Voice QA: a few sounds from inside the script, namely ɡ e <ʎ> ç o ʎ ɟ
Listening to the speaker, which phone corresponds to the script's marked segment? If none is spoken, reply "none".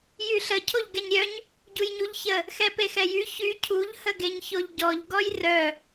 ɲ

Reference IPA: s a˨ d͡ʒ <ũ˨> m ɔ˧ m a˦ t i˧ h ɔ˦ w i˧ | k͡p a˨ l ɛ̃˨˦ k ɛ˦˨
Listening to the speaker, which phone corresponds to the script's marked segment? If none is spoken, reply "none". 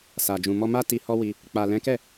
ũ˨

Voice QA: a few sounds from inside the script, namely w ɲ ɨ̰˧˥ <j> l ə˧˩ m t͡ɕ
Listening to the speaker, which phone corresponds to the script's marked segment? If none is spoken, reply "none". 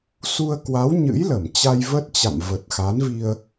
j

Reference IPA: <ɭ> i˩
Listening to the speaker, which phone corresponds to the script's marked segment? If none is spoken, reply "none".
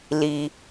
l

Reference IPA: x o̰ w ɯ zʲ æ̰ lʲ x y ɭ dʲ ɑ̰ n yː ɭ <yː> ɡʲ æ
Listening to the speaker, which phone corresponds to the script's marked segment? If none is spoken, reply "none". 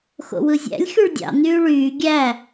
yː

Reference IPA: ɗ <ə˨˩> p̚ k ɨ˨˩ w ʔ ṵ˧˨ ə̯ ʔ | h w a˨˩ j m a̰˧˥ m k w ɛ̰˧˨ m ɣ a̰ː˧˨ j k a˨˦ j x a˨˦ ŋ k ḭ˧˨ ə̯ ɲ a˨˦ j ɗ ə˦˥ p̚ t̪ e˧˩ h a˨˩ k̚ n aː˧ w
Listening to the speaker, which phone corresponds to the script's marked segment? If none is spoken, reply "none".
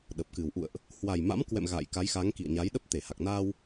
ə˨˩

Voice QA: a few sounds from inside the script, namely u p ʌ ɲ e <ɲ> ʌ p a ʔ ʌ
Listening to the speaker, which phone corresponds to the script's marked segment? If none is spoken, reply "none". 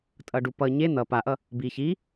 n̪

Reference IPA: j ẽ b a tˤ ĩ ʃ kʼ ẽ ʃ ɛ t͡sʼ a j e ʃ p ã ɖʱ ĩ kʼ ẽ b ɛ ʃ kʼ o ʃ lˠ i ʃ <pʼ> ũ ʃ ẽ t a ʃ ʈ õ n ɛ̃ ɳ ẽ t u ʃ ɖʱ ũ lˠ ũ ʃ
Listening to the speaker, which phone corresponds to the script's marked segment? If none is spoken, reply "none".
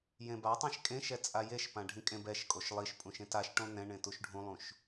pʼ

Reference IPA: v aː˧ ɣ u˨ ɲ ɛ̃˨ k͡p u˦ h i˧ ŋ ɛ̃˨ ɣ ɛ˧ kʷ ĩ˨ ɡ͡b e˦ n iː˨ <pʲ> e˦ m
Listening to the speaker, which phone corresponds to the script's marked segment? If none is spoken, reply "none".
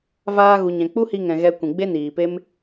p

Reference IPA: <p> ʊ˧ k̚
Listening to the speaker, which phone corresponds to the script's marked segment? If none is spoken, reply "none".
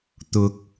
t̪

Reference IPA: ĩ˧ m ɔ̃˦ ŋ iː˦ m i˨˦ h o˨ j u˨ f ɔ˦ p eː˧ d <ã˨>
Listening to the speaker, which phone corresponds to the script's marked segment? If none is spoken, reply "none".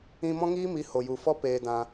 ã˧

